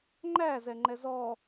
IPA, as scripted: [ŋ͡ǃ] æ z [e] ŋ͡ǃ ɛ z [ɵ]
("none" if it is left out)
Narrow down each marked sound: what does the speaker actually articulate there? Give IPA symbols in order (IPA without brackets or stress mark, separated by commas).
ŋ͡ǃ, ɛ, ɔ